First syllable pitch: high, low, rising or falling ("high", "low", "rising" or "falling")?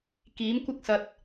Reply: rising